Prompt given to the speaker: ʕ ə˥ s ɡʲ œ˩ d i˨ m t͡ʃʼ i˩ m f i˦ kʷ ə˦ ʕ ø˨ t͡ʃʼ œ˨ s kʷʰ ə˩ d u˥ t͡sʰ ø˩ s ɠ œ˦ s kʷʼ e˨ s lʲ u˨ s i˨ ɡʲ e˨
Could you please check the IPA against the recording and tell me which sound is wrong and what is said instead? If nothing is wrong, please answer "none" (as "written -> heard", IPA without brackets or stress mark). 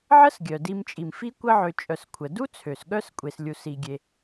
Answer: none